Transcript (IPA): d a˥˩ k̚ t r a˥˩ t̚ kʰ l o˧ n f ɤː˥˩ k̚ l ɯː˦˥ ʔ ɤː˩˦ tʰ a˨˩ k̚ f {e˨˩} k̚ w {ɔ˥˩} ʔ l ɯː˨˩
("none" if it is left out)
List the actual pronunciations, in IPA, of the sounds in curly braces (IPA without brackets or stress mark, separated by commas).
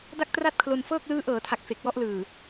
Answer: e˨˩, ɔ˥˩